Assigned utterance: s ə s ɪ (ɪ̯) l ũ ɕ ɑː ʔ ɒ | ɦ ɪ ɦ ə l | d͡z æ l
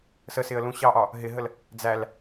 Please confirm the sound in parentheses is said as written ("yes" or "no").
no